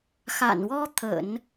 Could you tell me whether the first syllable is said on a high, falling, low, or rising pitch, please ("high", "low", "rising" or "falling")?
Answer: low